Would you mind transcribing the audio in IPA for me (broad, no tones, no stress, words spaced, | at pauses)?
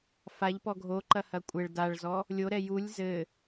faʎpɔ ɡʱoǃɐhɐ kʷʼɘɭ daɭzɔ | lʲoɾɛ julʲ zɘ